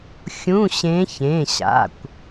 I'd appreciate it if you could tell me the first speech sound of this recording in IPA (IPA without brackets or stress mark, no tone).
xʲ